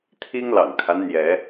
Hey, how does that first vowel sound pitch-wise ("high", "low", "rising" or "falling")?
high